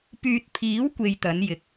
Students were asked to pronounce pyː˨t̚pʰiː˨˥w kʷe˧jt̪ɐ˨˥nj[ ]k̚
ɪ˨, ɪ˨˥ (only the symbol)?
ɪ˨